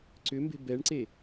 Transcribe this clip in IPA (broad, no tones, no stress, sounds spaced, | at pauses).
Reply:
ǀ ʏ m b e̤ b ɛ ɳ ǀ e